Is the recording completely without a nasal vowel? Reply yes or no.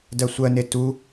yes